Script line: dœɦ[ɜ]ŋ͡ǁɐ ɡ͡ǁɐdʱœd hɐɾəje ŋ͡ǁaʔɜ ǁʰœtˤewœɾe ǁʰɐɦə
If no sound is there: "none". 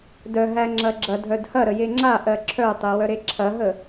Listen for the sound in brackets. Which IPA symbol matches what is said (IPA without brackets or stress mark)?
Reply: æ